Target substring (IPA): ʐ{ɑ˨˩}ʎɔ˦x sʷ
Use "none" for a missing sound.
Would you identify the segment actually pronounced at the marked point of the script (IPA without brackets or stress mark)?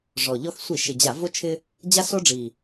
ɔ˨˩